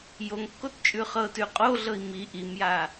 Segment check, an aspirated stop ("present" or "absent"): absent